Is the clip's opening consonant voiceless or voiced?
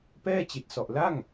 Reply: voiceless